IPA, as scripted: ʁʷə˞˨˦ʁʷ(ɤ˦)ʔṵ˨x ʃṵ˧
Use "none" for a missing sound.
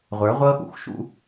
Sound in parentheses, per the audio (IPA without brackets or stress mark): ɤ˦